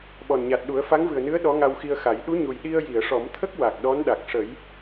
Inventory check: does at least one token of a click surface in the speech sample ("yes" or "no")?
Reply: no